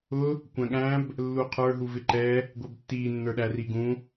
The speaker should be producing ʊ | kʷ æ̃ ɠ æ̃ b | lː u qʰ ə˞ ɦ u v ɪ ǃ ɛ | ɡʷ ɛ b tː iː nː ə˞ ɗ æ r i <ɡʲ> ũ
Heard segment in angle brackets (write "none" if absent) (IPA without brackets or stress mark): ɡ